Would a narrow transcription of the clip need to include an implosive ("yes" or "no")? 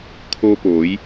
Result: no